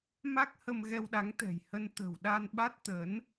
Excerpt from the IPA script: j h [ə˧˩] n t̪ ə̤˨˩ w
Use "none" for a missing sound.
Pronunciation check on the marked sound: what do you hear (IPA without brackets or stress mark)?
ə˧